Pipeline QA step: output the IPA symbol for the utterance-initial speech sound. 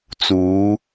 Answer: t͡s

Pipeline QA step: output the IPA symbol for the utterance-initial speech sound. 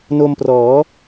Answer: n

